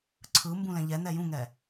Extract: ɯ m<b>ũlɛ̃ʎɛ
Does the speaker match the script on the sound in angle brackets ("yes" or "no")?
yes